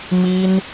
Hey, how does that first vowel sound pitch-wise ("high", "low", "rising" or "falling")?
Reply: high